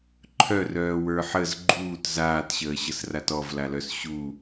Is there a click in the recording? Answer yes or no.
yes